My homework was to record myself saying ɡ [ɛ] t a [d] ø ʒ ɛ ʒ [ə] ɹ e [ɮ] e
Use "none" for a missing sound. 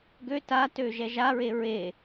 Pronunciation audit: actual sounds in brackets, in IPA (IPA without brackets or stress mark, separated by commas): ø, t, a, ɹ